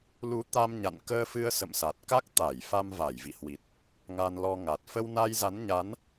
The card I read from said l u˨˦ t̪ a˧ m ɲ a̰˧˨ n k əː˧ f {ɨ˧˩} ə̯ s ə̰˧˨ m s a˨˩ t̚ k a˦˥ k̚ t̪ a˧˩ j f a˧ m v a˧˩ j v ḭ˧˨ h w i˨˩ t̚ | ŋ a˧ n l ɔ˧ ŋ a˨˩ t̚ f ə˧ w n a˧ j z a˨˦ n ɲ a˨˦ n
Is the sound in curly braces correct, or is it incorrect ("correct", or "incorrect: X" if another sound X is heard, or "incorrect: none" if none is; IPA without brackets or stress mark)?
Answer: incorrect: ɨ˧